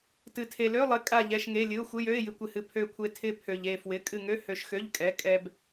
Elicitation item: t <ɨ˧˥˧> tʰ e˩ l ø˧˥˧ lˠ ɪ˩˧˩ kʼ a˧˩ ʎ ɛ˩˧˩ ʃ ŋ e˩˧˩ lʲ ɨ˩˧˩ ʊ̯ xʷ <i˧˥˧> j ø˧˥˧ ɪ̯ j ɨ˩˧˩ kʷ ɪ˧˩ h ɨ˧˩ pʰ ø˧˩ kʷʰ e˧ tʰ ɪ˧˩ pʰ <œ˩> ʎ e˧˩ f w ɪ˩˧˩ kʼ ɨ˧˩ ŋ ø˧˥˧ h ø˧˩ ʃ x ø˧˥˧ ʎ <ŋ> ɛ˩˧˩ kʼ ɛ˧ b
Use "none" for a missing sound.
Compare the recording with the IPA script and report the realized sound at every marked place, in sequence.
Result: ɨ˩, ɪ˧˥˧, ø˩, kʼ

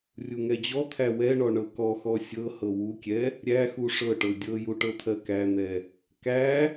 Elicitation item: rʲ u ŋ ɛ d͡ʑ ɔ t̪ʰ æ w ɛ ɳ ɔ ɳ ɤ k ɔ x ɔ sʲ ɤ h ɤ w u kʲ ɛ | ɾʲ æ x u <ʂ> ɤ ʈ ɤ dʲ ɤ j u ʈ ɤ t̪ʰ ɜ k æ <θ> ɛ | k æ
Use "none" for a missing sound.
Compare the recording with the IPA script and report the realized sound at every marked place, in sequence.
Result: ʂ, n̪

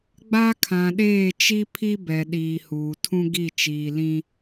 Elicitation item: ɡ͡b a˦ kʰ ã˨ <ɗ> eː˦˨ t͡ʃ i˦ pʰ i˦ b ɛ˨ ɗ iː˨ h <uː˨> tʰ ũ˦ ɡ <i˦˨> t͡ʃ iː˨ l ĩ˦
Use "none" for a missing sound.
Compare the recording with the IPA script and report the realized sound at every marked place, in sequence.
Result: ɗ, uː˨, i˦˨

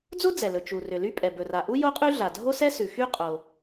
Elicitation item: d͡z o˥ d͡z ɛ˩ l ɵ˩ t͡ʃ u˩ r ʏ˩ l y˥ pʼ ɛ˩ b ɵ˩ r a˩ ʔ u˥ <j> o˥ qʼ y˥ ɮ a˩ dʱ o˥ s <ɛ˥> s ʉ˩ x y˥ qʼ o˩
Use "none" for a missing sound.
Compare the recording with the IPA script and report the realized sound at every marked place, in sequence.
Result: j, ɛ˥

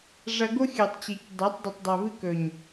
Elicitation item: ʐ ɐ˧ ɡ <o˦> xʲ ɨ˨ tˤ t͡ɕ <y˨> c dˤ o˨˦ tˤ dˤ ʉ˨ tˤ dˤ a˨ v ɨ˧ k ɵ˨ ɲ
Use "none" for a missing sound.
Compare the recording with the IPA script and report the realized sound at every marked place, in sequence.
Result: o˦, i˨

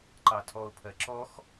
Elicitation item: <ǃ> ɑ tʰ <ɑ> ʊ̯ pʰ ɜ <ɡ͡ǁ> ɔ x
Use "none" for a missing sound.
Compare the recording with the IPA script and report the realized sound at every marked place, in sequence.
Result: ǃ, ɔ, ǁ

